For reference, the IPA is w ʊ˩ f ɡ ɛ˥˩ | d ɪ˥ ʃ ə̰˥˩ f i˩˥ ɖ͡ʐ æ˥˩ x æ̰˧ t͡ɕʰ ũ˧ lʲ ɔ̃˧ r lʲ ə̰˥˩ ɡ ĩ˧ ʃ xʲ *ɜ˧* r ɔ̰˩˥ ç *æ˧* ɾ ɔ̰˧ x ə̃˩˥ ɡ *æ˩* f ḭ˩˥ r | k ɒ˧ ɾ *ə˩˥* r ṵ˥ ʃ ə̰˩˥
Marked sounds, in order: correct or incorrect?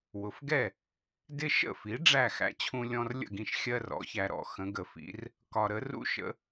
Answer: correct, correct, incorrect: ə˩, correct

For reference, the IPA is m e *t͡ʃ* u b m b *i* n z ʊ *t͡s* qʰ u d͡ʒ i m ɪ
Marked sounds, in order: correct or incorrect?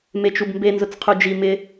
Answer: correct, incorrect: e, correct

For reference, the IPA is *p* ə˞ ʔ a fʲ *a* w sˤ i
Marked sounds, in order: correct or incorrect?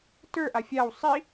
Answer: incorrect: t, correct

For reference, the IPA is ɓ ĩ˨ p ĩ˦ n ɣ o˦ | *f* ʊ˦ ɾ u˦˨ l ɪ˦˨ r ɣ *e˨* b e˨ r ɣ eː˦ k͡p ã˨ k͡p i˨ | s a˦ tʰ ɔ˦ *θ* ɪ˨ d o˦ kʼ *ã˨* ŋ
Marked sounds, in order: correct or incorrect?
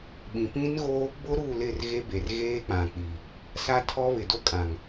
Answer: incorrect: b, incorrect: e˦, incorrect: β, correct

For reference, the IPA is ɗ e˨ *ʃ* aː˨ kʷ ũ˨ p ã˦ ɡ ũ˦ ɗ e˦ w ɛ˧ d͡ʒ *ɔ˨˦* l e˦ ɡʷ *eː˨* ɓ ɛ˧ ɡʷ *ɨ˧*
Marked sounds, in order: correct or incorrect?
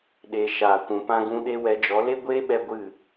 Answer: correct, correct, incorrect: eː˦, incorrect: ɨ˦˨

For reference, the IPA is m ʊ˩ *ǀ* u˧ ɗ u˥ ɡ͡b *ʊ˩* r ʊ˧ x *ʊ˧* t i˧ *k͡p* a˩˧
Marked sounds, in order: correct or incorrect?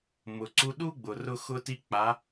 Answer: correct, correct, correct, correct

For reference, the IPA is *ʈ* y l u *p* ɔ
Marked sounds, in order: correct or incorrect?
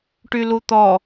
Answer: correct, incorrect: t̪

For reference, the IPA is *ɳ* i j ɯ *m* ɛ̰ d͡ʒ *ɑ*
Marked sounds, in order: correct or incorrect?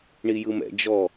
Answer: correct, correct, incorrect: ɔ

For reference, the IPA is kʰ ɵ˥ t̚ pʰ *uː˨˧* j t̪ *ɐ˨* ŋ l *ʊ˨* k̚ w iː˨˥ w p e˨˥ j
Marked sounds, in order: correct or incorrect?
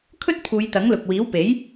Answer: correct, incorrect: ɐ˨˥, correct

